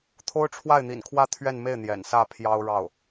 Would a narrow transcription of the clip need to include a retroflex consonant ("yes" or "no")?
yes